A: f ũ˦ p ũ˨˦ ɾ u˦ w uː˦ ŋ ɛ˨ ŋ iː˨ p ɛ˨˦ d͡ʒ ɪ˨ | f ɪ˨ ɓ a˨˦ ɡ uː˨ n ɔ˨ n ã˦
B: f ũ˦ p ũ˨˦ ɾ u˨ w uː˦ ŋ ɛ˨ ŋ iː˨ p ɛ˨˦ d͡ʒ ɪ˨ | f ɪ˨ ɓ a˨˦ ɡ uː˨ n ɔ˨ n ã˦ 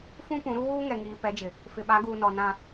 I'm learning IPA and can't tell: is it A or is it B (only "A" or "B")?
A